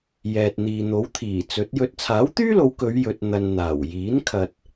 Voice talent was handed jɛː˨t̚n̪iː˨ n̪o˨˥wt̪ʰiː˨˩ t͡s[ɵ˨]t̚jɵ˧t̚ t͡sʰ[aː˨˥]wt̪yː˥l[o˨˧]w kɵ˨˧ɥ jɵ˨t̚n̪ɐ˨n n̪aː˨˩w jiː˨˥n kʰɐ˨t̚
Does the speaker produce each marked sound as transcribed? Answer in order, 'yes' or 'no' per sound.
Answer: no, yes, yes

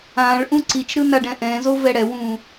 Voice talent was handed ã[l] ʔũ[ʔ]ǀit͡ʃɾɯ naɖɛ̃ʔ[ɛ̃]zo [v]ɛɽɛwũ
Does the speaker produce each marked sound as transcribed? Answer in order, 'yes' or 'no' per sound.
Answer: no, no, yes, yes

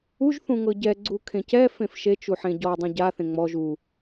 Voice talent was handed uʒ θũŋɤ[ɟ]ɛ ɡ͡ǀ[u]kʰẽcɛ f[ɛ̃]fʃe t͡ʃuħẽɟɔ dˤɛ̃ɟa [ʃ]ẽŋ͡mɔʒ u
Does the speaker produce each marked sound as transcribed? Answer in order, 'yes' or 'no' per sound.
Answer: yes, yes, no, no

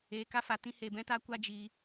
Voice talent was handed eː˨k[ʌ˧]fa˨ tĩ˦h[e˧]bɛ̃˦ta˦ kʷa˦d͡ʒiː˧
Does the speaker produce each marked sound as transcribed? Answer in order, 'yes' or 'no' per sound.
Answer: no, yes

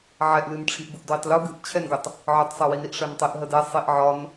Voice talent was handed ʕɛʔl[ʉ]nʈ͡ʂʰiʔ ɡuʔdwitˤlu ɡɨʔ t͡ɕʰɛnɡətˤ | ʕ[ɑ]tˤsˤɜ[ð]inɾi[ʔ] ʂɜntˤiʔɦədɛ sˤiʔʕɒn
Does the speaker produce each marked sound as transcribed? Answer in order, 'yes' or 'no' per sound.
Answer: no, no, no, yes

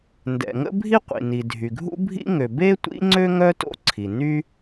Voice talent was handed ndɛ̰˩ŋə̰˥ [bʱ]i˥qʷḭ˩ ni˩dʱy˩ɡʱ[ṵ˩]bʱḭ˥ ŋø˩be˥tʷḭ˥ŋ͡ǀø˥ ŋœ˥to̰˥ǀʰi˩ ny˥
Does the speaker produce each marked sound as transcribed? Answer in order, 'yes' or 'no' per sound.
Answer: yes, no

